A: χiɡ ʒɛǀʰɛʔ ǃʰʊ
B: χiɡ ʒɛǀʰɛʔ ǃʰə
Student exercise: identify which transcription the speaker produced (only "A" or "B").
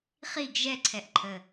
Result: B